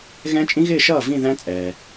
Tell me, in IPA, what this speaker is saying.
ɣ ɛ̃˦˥ t͡ʃʼ ĩ˦˥ ɣ ɪː˥˧ ʃ ʌː˥˩ v ĩ˥˧ ð æ̃˦˥ t͡sʼ ɛː˩

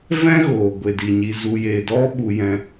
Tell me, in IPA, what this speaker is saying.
v ɛ̃˦ ɣ oː˨ ɡʷ e˨ d i˨ ɲ i˧ z u˧ j e˧ d ɔ˦ ɓ u˧ j ɛ̃˧

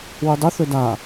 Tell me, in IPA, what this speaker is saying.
w u dˤ ɵ θ ɵ d a

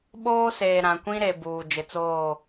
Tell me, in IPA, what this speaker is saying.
ɓ oː˦ s eː˨ ɾ ã˨ kʷ ĩ˦ ɾ e˨ b uː˨ d͡ʒ ɪ˨ t͡s oː˦˨

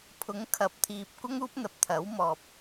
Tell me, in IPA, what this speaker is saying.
pʰ ʊ˨˥ ŋ kʰ ɐ˨ p̚ t̪ʰ iː˨ p̚ kʷ ɐ˥ ŋ uː˥ p̚ n̪ ɐ˨ p̚ t̪ʰ ɐ˨˥ w m ɔː˨ p̚

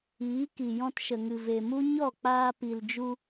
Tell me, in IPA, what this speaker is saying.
iː˨˦ k i˨ j ɔ̃˧ t ʃ ə˨ ŋ ɨ˨ v e˨ m u˦ ɲ ɔ˦˨ k͡p aː˧ p i˨ l d͡ʒ u˧

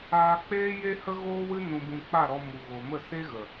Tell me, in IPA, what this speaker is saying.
aː˧ k͡p eː˦ j e˦ h ə˦ ɣ oː˦ w ɨ˦ n ũ˧ b ũ˧ k͡p a˦˨ ɾ ɔ˧ m u˨ ɣ o˨ m ə˦˨ s e˦ ɣ ə˨

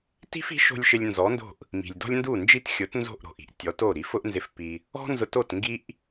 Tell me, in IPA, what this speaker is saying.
t i̤˥ f i̤˩˥ ʃ o̤˧ lʲ ʃ ɪ˧ lʲ n z ɔ˩˥ n d o̤˥˩ ʔ | m i̤˩ lʲ d ɔ̤˥ lʲ n d u˥˩ n d͡ʒ i˥ t xʲ ʊ˩˥ t n z o̤˥˩ ʔ ɾ o̤˩ ʔ i̤˥ ʔ tʲ ɔ˩˥ t o˥˩ ɾ i˩˥ f ʊ˥ ʔ n z ɪ˧ f p i˧ | ɔ̤˥ n z ʊ˧ t o˥˩ t ŋ ɡ i˥ ʔ

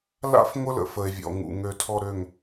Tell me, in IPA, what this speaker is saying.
l a̰˦ f ŋʷ ə˦ l ə̰˨ f ə˨ e̯ vʲ ɔ̰˨ ŋ ṵ˨ ŋ ø˨ tʰ ɔ˨ ɾ ø˨ ŋ

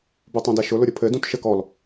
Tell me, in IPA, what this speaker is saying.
b u tˤ ũ d ɛ ʃ ʊ l ʊ ɾʲ ʊ pʰ ɘ d ũ t ʃ ɘ k ɔ l

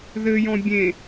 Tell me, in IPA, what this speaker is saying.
ð ɘ j ɔ̃ bʲ ẽ

